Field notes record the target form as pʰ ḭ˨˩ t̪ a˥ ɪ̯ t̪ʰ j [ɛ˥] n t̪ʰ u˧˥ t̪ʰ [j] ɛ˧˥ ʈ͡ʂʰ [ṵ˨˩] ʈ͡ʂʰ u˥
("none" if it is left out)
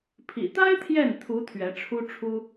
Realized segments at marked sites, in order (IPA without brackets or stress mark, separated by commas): ɛ˥˩, ɥ, u˥